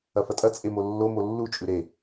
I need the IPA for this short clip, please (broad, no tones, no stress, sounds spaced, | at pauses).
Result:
ɐ f ɐ tʼ ɐ t͡sʼ e m o lː o m o lː u t͡ʃʼ ʉ ɾ e